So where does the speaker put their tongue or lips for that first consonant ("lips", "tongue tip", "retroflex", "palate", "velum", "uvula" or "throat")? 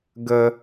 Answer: velum